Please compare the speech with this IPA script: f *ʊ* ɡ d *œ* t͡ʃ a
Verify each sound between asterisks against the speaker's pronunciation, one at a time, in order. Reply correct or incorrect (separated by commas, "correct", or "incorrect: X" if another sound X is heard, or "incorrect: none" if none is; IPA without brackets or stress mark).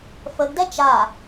incorrect: ə, incorrect: ɛ